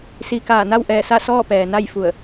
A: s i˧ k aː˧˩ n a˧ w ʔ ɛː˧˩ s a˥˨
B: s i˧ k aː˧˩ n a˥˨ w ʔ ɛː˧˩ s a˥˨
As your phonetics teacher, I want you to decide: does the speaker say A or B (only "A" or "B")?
B